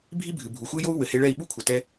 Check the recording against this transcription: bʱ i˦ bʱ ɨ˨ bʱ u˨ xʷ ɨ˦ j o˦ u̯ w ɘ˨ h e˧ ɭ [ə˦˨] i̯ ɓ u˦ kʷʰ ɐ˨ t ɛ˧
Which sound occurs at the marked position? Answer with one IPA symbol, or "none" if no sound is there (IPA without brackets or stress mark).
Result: ɛ˦˨